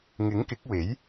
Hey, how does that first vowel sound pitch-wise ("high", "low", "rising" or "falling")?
rising